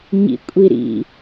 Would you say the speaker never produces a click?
yes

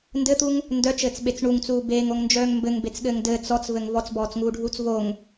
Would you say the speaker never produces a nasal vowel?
yes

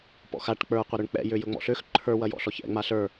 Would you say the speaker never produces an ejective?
yes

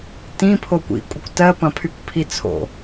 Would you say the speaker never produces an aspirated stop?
no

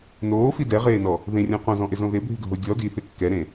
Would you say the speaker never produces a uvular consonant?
no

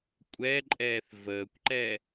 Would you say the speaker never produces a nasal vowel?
yes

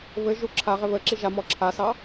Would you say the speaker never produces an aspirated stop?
no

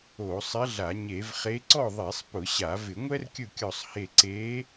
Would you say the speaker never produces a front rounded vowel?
yes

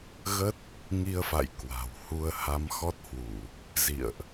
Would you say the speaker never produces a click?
yes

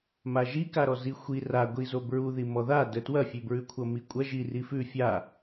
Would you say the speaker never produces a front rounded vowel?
yes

